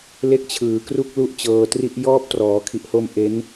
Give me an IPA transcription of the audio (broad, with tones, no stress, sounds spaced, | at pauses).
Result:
l e˥˩ k̚ t͡ɕʰ ɯː˨˩ k r u˥˩ k̚ l u˥˩ ʔ t͡ɕ ɤː˧ t r i˥˩ ʔ j ɔː˦˥ p̚ t r ɔː˩˦ kʰ i˨˩ ʔ h o˧ m ʔ e˦˥ n